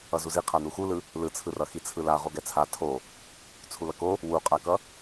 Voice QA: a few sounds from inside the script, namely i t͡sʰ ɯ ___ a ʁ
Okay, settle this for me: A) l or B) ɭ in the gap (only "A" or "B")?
A